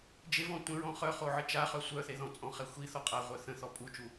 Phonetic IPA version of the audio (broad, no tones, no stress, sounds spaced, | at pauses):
d͡ʒ e v ɔ̃ tʷ ə̃ ɹ ɔ̃ χ œ χ o ʕ ə t͡ʃ a χ œ sʷ œ θ e ð ɔ̃ t͡sʼ ɔ̃ χ ɛ xʷ i θ ɔ qʼ a ʁʷ œ θ ə̃ θ ɔ pʼ u t͡ʃ u